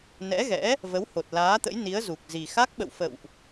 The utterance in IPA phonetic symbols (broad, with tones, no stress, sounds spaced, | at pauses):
n ɛ̰˧˥ ɣ ɛ̰˧˥ | v ə˨˦ w h o˨˩ t̚ l aː˨˦ t̪ ə̰˧˥ j n i˨˦ ə̯ z u˨˩ k̚ z i˨˩ x a˦˥ k̚ ɓ ə̰˧˨ w f ə̰˧˨ w ʔ